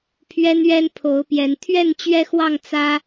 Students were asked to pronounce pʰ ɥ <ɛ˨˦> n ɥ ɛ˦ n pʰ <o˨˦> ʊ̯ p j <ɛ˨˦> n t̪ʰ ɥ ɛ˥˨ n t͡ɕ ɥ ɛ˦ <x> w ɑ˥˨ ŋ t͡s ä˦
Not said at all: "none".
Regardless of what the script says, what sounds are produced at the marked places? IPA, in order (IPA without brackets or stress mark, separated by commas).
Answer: ɛ˦, o˨˦, ɛ˨˦, x